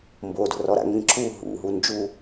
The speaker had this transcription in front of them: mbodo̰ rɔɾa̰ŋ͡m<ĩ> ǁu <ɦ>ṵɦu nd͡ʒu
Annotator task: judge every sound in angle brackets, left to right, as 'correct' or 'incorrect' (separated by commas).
correct, correct